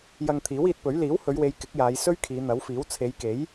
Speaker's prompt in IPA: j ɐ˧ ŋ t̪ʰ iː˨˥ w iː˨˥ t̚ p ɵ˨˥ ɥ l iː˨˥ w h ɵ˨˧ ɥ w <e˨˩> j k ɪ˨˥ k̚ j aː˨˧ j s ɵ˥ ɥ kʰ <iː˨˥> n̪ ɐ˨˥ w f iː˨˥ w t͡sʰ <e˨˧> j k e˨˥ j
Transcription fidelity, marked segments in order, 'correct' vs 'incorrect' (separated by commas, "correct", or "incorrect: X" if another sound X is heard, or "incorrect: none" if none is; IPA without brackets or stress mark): incorrect: e˨˧, incorrect: iː˨˧, correct